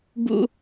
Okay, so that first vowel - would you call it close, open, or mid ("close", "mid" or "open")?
close